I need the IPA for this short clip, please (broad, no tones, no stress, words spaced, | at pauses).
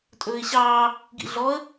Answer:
tʼɵːɪ̯ɕɑː | ɡḭɮɔə̯